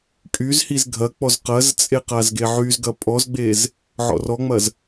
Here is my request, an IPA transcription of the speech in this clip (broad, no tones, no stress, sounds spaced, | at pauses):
kʼ y z h i z ɡʱ ɐ k͡p ɔ z q ɐ z t͡sʼ e q a z ɡ e ʕ y z ɡ ɐ pʼ ɔ z ɡ͡b e z | ʕ ɔ̰ r ɔ ŋ͡m ɐ z